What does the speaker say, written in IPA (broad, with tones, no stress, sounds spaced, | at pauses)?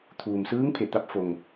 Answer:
t̪ʰ uː˩ m s ɯː˧˥ ŋ pʰ e˧˩ t̪ a˧˥ p̚ f o˩ ŋ